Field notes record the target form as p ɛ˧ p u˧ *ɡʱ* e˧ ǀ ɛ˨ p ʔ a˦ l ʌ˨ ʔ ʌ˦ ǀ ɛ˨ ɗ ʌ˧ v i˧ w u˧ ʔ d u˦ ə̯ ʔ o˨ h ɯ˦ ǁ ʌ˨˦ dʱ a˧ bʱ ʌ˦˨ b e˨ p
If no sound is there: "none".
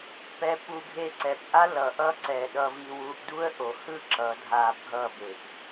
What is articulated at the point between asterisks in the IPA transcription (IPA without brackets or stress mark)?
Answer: ɡʱ